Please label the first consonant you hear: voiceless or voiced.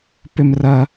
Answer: voiceless